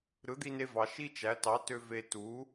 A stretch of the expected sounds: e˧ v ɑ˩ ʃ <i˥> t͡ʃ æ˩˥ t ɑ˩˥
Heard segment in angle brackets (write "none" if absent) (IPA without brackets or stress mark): i˥